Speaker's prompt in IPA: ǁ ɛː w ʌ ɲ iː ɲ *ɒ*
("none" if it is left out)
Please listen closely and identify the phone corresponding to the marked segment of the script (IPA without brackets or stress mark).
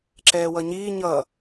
ʌ